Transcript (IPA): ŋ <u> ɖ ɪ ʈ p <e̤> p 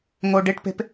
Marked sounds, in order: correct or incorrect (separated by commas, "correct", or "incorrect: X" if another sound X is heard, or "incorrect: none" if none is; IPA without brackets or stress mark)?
incorrect: o, correct